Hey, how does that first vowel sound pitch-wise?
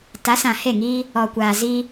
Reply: rising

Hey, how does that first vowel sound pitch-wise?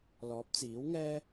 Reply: rising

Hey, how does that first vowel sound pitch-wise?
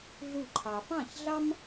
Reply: falling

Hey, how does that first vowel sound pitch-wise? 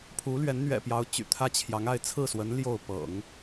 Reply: rising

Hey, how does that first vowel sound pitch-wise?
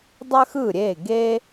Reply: high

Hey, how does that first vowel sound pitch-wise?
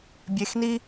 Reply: rising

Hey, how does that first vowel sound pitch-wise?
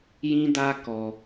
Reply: high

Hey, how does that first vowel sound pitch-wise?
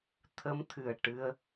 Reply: rising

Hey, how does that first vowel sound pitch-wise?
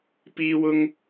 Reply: high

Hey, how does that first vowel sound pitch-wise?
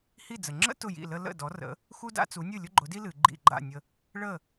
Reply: falling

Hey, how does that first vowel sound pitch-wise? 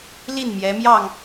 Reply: falling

